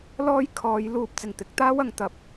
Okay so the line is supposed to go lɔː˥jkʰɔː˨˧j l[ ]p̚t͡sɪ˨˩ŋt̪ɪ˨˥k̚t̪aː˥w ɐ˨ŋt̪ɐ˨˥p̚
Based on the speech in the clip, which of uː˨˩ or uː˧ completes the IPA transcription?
uː˧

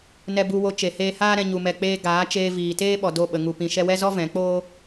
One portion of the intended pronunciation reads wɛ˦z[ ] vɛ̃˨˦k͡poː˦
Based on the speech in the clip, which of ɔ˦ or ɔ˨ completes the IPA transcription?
ɔ˦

